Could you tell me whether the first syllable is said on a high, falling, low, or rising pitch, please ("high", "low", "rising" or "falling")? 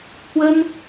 high